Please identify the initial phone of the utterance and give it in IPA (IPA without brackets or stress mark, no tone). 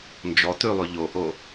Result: n